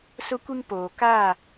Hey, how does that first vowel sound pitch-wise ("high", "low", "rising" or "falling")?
high